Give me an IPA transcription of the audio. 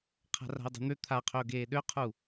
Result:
qʰ a̤ r a̤ ɪ̯ dˤ i̤ n̪ ø t̪ʰ a qʰ ø ʊ̯ ɡ eː ɗ ø qʰ u

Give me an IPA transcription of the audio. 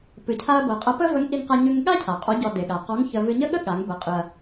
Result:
p ɨ˩˧ cʰ a˧ ɐ̯ b ɤ˩ qʼ ɐ˧˥ p ə˥ v ə˧˥ ŋ ʔ i˧ ŋ q a˧ ɲ ʉ˧ ŋ ɠ a˥ cʰ a˩ qʼ ɔ˧˥ ɟ ɔ˧ d e˩ ɠ a˩ q ɔ˧˥ ŋ ç ə˧ v ɨ˧ ɲ ə˥ ɠ ə˥ ɠ a˩˧ ŋ b ə˩˧ qʼ ɨ˩ ɐ̯

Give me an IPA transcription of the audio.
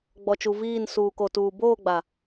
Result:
ɡ͡b ɔ˨ t͡ʃ u˨ v iː˦˨ n s uː˨ k o˨ t uː˨ b oː˦˨ ɡ͡b a˨

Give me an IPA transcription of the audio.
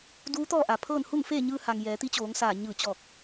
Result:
d uː˧˥ t̪ ɔː˥˨ ʔ a˩ pʰ ɤː˥˨ n h u˥˨ ŋ f eː˥˨ ɲ ɯː˧ h a˩ ŋ j ɛː˩˧ t̪ i˧˥ t͡ɕ oː˩˧ ŋ s aː˧˩ ɲ ɯː˧˩ t͡ɕ ɔː˧˩ k̚

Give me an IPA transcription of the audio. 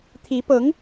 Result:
t̪ʰ i˧˥ p ɤ˧˥ ŋ

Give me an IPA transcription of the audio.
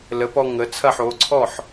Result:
l ə˩˥ p ɔ˧ ŋ ə˩˥ t͡sʰ ɐ˥˩ ħ o˩˥ ǀʰ ɔ˥˩ ħ

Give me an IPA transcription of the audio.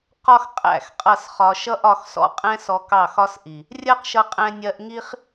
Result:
q ɒ˦ x qʼ æ̰˦˨ x qʼ ʌ˦˨ s χ ɒ˧ ʃ ʌ˦ ʔ ɒ˧ x s ɔ̰˦ qʼ ɛ̃˦ s ɔ˧ k ɑ˦˨ x ɒ˦ s ʔ i˨ | rʲ ɜ˦ q ʃ ʌ˧ qʼ ɛ̃˧ nʲ ɜ˧ ʔ ŋ i˦ χ

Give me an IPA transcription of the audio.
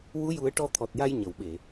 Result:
w u˧˥ j u˨˩˦ ə̯ ʈ ɔ˧ t̪ʰ ɔ˨˩ t̚ j a˧ j ɲ ə˨˩˨ w ɓ e˨˩˨

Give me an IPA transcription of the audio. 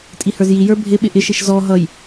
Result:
tʼ i h ə˞ z j i j ə˞ bʱ ɪ ɓ ɪ ʔ ɪ ʃ i ʃ z ɔ ɦ ʌ j

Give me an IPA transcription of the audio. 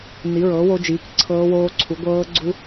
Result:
n i˨˥ ɹ ɤː˨˥ w o˦˥ d͡ʒ iː˨˥ k ǀʰ ɤː˦˥ w oː˦˥ ǀʰ u˨˥ ɡʷ ɤː˦˥ ɡ͡ǀ u˦˥

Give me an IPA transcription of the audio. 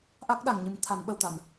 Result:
ʔ a˦˥ k̚ ɗ a˨˩ ŋ ɲ ɨ˨˩ m t̪ʰ a˨˩˦ n ɓ ə˨˩ w t̪ a˨˩˨ n

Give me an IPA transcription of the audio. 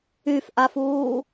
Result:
y f ʔ a f uː

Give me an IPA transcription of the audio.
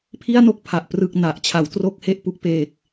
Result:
pʰ i˥˩ a̯ n o˥˩ k̚ pʰ a˨˩ ʔ p r ɯ˨˩ k̚ n a˨˩ ʔ t͡ɕʰ a˩˦ w t r o˥˩ k̚ h e˥˩ ʔ p u˦˥ k̚ p eː˨˩ k̚

